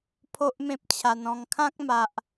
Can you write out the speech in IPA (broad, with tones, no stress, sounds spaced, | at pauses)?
pʰ o˦ ʔ m ẽ˦ p̚ t͡ɕʰ a˧ n ɔ̃˧ ŋ kʰ ã˦ k̚ m a˨ ʔ